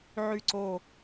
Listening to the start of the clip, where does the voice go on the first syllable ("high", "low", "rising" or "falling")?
falling